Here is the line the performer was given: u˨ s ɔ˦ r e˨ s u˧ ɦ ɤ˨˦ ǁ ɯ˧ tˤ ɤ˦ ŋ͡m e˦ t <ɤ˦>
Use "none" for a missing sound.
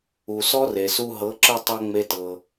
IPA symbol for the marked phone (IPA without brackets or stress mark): ɤ˧